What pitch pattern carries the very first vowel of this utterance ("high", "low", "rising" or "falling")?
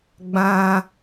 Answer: high